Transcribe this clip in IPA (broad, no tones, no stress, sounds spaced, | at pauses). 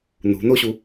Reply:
n ṳ n o ɕ u